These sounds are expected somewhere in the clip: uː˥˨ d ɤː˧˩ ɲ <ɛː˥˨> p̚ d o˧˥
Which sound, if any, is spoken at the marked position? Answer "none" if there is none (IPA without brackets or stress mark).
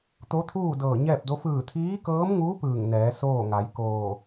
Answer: ɛː˥˨